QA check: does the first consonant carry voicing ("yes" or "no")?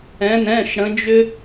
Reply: yes